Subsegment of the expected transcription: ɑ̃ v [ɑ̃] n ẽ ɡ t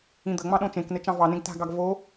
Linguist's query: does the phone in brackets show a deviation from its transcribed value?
yes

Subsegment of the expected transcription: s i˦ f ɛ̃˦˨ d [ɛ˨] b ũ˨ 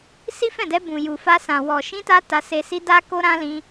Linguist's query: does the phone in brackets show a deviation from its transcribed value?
yes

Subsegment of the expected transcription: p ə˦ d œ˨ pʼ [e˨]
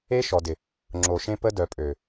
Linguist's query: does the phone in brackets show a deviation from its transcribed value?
yes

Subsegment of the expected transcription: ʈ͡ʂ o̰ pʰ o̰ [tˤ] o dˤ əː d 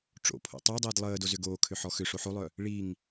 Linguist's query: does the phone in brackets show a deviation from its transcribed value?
no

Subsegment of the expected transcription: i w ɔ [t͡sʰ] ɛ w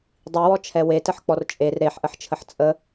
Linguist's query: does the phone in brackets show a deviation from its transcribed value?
yes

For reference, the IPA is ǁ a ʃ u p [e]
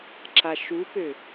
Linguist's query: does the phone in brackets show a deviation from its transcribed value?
yes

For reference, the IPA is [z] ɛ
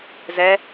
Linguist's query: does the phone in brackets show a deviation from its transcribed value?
no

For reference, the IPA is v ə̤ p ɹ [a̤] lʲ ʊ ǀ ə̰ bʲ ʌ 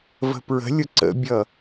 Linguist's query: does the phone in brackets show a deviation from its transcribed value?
yes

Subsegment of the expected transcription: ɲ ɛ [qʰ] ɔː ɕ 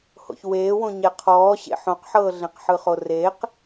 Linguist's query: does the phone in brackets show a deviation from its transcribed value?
no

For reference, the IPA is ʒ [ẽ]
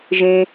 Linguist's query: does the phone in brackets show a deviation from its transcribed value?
no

